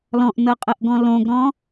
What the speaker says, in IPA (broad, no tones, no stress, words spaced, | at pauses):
lɔ̃ʔnɤqʼɤʔɡɔ̃ lõɡɾɔ̃